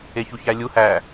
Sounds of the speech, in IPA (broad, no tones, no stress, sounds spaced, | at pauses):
e ç u ç æ lʲ u h æ